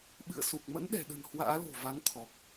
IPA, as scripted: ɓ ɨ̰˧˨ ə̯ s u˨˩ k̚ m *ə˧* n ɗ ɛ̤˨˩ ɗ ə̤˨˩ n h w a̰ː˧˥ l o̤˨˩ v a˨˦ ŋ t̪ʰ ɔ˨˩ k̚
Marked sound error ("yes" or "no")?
yes